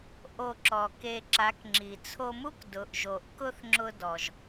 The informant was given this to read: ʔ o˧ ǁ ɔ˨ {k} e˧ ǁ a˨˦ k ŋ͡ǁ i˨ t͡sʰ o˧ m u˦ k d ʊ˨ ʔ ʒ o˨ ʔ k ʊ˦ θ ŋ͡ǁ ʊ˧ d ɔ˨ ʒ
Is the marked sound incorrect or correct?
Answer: correct